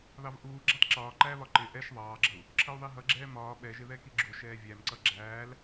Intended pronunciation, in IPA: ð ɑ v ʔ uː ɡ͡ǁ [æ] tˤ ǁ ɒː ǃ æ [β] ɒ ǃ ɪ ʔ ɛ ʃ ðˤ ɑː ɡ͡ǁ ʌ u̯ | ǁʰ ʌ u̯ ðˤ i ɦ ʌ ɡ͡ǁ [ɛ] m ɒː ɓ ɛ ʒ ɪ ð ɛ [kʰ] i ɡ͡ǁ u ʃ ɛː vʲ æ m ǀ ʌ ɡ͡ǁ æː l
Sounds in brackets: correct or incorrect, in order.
correct, correct, incorrect, incorrect

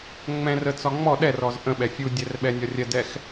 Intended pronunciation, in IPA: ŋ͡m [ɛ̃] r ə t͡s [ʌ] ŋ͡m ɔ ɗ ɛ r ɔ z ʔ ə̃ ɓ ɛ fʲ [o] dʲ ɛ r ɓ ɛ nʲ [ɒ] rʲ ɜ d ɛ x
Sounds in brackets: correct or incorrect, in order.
correct, incorrect, incorrect, correct

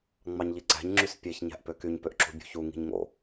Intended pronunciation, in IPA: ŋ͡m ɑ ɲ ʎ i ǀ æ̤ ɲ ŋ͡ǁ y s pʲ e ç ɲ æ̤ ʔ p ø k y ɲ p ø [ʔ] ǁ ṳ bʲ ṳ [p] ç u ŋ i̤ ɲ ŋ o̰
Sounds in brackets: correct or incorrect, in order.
correct, incorrect

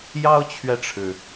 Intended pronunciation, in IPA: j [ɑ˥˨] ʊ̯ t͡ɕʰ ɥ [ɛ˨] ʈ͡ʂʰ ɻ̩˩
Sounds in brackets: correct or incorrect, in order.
incorrect, correct

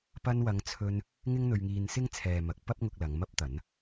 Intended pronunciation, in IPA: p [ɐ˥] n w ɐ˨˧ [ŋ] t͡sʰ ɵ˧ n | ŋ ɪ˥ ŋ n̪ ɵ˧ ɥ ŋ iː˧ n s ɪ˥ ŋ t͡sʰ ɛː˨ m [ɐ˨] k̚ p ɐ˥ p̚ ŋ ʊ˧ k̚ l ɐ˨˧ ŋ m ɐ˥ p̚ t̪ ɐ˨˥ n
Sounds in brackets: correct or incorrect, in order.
incorrect, correct, incorrect

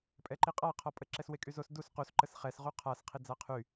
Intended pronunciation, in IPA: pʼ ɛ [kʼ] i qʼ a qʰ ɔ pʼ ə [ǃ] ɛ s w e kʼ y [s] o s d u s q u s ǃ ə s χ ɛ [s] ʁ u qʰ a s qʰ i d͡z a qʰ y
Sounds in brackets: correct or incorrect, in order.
incorrect, incorrect, incorrect, correct

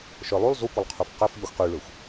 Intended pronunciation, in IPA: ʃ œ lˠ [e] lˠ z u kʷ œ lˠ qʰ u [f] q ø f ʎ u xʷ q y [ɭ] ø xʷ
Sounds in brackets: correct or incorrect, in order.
incorrect, correct, correct

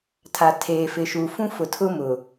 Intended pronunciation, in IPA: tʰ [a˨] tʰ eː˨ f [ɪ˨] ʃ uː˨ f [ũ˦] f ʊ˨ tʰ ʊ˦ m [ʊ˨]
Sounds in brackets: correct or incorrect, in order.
correct, correct, correct, correct

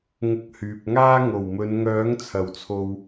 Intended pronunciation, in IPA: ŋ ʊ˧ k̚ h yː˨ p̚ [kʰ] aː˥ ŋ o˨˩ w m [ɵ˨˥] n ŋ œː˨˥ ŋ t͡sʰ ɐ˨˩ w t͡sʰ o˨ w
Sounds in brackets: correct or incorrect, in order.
incorrect, incorrect

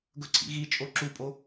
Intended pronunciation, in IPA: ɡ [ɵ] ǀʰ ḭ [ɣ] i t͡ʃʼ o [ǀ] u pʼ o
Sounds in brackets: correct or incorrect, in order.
correct, correct, incorrect

